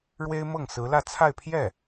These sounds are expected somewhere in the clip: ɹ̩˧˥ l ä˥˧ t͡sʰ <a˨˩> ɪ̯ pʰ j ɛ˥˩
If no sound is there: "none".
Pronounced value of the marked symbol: a˥˧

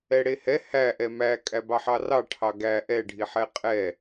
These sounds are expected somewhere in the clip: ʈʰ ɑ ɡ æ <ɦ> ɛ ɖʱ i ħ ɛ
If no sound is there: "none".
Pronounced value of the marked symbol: ʔ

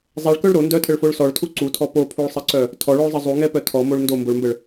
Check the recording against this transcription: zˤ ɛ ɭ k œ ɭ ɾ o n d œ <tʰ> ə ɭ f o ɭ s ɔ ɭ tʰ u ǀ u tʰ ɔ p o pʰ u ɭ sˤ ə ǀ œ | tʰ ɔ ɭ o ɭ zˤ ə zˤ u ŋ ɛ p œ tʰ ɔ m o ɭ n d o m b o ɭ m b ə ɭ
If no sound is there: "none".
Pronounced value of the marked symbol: tʰ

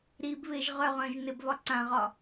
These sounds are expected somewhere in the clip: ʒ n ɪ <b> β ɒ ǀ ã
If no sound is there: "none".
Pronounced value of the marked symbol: b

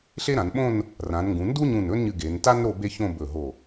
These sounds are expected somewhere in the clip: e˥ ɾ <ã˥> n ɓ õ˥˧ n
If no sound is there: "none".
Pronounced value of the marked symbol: ã˩˧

